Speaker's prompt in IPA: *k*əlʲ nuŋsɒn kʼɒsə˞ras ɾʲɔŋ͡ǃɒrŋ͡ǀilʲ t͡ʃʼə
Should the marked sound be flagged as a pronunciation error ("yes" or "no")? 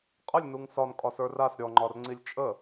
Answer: yes